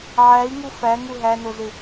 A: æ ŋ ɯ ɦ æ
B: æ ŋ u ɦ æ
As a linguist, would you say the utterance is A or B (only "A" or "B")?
B